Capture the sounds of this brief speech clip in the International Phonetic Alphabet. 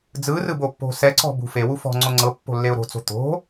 d͡z ɯ r ɯ b o pː o̤ s ɛ ǀ ɔ̤ b ṳ f e w u f ɔ̤ ŋ͡ǀ o ŋ͡ǀ ɤ pː o̤ lː e ʊ̯ ɾ o̤ t͡s o̤ t̪ o̤

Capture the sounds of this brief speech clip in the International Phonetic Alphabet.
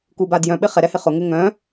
k u b a d j œ̃ ɓ ɪ χ ɛ ɾ ɛ h ɪ χ ʊ ŋ ɪ ŋ œ̃

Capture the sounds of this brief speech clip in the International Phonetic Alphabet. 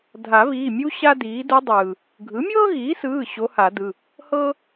dʱ a˨˩˦ β iː˩˧˩ mʲ u˥ ɕ a˥ d iː˩˥ d u˧˥ dˤ ɯː˩ | ɡʱ ɯ˩˥ mʲ ɤː˥ ɣ iː˩˥ s ɯː˩˧˩ ɕ o˧˥ h a˨˩˦ d ɯ˩˧˩ | h ɤ˥

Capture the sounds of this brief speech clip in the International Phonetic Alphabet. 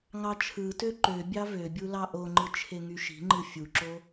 ŋ ɑ t͡ʃʰ ɯ t ø ǃ ø bʲ ɑ v ø bʲ u l ɑ ʔ o ŋ͡ǃ ɯ t͡ʃʰ e ŋ y ʃ i̤ ŋ͡ǃ ɯ fʲ u ǁ o

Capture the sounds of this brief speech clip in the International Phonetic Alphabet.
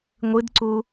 ŋʷ ɨ d ǀ u

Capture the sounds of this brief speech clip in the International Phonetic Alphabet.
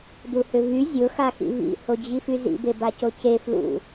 d u h ʏ v y zʲ ʊ x a x ḭ v ḭ h o d͡ʑ i f y z ḭ b e b a c o c e f l ṵ

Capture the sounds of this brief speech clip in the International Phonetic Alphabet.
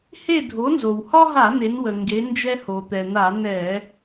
h e˥˨ dʱ o˩˥ n z o˩ w h ɒ˦ ɦ a˧˩˧ n̪ e˩˧ n w ə˩ ŋ ɡ e˩˧ n d͡ʒ ɛ˦ h o˩ t̪ ɛ˩ n̪ a˧˩˧ n ɛ˧˩˧

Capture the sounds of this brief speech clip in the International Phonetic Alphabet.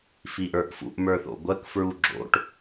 f i ʔ ə˞ ʔ f ṵ ʔ m ə˞ θ o̰ ɡʷ ɜ k f ɹ u ɡ͡ǁ o̰ ʈ

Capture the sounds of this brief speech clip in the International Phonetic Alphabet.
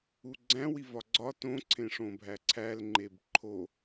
u ɡ͡ǀ æ̃ w i v ɒ ɡ͡ǀ ɒ t õ ǀʰ ẽ ʂ õ bʱ æ ǀʰ æ l ŋ͡ǃ e b ǃʰ o

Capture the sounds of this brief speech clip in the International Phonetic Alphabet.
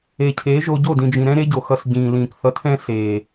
e˨ cʰ eː˨˦ ʒ o˧ ɟ o˦˨ d ĩ˨ d͡ʒ ĩ˨ ɾ ɛ̃˦ ɾ e˦ ɟ o˨ x ʌ˧ s ɟ ĩː˨ l ĩː˨ k θ ʌ˧ tʰ ɛ̃˦ s eː˨

